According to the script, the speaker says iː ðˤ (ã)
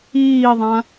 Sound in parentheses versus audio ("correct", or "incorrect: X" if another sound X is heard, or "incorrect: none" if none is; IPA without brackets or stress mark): correct